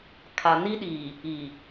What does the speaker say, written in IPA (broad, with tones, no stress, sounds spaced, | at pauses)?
kʰ a˨ n i˦ ɗ iː˨ | i˨